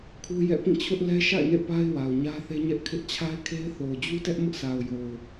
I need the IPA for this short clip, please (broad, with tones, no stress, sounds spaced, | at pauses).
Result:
kʰ u˦ j ɛ̰˦˨ p ĩ˦˨ t͡ɕʰ ʊ˦ ʔ l ɛ˦ ʃ a̰˦˨ ɪ̯ n ḛ˦˨ p a˦ ɪ̯ w a˨ ʊ̯ ɲ ä˦ θ e˦ ɲ ɛ˦ ʔ kʰ ɪ˦ ʔ t͡ɕʰ a˦ ɪ̯ kʰ e˦ ɪ̯ θ o˨ ʊ̯ d͡ʑ u˦ t ɛ˦ ʔ m ʊ˦ ʔ s a˨ ʊ̯ j o˨ ʊ̯